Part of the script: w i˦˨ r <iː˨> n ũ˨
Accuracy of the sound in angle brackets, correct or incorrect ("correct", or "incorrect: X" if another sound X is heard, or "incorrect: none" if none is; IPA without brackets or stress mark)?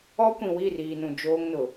correct